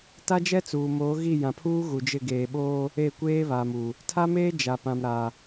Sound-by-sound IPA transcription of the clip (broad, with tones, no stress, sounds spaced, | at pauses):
t a˦ d͡ʒ ɛ˦ t͡s uː˨ m oː˨˦ ɣ i˦˨ j ã˨ pʰ uː˦ ɣ u˨ d͡ʒ ɪ˦˨ ɡ eː˨ ɓ oː˦ | e˦˨ kʷ eː˦ β a˨ m u˨ | tʰ a˦ m eː˦ d͡ʒ a˨ p ã˨ m ɾ a˨